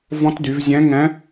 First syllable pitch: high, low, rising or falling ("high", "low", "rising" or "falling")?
rising